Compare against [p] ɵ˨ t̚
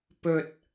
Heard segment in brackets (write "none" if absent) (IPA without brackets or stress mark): p